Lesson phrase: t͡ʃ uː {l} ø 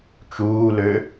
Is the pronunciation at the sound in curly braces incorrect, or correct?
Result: correct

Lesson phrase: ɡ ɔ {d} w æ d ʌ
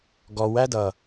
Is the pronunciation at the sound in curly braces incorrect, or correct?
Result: incorrect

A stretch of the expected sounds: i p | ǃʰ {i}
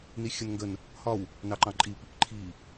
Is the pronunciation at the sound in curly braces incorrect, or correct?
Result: correct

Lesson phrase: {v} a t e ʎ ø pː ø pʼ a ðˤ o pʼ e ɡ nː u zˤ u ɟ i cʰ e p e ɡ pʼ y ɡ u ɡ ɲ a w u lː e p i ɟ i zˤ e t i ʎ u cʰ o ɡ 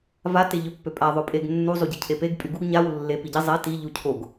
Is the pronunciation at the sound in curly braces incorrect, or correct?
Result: correct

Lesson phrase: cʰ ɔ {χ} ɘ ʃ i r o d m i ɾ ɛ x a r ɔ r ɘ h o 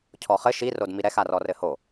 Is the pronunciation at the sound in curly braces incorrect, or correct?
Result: correct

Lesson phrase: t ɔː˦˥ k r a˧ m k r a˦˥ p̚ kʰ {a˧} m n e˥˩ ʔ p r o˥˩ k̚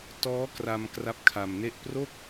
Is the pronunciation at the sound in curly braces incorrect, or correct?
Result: correct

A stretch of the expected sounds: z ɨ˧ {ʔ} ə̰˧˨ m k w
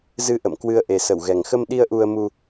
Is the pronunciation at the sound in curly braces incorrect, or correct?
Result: correct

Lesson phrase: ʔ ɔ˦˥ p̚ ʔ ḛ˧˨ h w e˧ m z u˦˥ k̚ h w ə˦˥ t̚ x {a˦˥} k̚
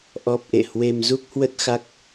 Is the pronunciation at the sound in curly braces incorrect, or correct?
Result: correct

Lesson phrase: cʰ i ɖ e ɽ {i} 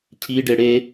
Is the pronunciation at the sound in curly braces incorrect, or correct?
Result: incorrect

